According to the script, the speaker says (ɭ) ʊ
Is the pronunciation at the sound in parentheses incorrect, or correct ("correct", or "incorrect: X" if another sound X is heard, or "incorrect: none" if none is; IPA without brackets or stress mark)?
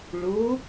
correct